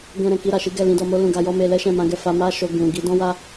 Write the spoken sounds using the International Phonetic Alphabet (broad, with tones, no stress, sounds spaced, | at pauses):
ɡ ɛ̃˧ ɾ ɛ̃˨ k i˧ ɾ a˨ ʃ i˨˦ ɡ ɛ˦˨ l ĩ˨˦ d ɔ˧ m o˦ l ũ˧ ɡ a˧ j ɔ˦ m e˧ l ɛ˦ ʃ ɛ̃˦˨ m ã˨˦ ɡ ɛ˦˨ f a˨˦ m a˦ ʃ o˧ ɡ ũ˨ ɡ i˨˦ d ɔ̃˦ w a˦